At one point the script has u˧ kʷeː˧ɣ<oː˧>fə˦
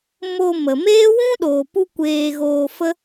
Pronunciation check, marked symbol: correct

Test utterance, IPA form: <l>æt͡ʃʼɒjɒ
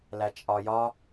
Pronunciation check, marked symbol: correct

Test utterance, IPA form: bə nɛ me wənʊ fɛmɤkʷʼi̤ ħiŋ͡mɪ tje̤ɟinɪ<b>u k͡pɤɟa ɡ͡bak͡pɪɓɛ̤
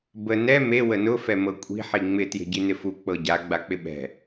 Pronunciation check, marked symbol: incorrect: f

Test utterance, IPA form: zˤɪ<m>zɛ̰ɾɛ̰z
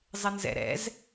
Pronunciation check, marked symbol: incorrect: n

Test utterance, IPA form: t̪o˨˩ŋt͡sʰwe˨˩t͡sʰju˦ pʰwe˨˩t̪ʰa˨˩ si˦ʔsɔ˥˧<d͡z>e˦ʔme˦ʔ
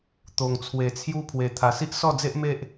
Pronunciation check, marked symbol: correct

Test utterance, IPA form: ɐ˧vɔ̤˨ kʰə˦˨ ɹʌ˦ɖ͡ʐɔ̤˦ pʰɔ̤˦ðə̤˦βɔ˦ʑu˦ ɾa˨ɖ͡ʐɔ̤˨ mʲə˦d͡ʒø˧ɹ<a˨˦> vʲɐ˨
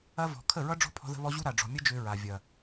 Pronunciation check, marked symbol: incorrect: a˨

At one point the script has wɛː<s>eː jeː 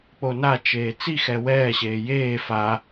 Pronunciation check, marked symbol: incorrect: ɕ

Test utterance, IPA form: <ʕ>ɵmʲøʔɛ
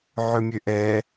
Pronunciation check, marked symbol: correct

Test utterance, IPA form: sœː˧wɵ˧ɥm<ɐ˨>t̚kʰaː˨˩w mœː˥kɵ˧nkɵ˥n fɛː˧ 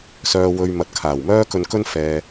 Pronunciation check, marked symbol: correct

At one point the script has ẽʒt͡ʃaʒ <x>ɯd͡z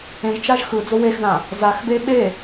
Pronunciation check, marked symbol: correct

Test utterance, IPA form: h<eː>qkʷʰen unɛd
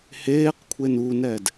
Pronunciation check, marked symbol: correct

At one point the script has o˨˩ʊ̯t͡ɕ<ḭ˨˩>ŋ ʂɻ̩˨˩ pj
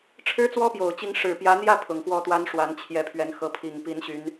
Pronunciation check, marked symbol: incorrect: i˧˥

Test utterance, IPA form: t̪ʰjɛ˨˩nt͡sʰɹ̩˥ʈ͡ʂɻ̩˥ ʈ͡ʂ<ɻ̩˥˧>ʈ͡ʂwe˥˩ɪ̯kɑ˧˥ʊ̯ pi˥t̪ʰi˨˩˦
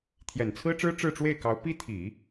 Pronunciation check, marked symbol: correct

